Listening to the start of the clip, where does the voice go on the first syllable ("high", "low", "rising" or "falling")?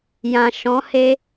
low